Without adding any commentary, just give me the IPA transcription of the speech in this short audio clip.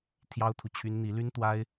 t̪ʰ j ɑ˥ ʊ̯ t̪ʰ u˨ t͡ɕʰ y˥ n n̪ i˧˥ l y˥ n t̪ w a˥ ɪ̯

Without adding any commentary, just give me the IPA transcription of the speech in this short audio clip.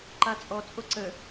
ǃ a t͡sʼ ɔ t͡sʼ o ǀ ə

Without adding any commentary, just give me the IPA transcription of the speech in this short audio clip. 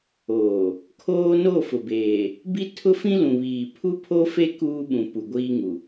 oː˨ | kʰ oː˦ n o˦˨ f ʊ˨ b eː˨ | b i˦ tʰ ʊ˦ f ĩ˦ l ũ˨ β iː˨ pʰ u˦ pʰ o˦ f e˦ k uː˦ ɓ ũ˨ p u˨ ɡʷ iː˦ ŋ u˨

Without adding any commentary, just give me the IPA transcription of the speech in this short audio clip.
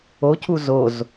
o c u z o z

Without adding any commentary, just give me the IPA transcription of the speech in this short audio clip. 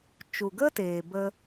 t͡ʃ u˨ ɡ ə˦ t eː˨ b ə˧

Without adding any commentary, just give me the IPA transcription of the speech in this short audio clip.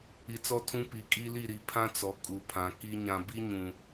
i˨ t͡s ɔ˦ tʰ ũ˦ p i˨ kʼ i˦ l i˦˨ ɾ i˨ pʰ ã˦ t͡s ɔ˨ kʼ u˨ pʰ ã˨ k i˦ ɲ ã˨ b i˦ ɲ ũ˨

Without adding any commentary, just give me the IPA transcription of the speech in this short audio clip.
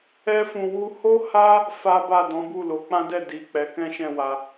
ɛ˧ f ũ˨ w u˧ h o˦ h a˦ | f a˦ b a˦˨ d ɔ̃˨˦ b u˦˨ l o˨˦ k͡p ã˦ d ɛ˦˨ d i˨ k͡p ɛ˨˦ k ɛ̃˦ ʃ ɛ̃˦˨ w a˧

